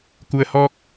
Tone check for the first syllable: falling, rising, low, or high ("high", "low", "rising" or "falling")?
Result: low